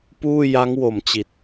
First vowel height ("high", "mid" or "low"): high